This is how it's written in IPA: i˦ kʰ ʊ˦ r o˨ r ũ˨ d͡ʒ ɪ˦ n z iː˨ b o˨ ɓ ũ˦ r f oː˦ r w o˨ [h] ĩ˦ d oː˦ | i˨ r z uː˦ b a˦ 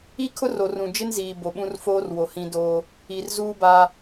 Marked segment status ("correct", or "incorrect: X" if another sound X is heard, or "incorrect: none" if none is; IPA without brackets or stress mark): correct